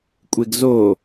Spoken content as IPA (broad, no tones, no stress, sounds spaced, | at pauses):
kʷʼ e ɡ z o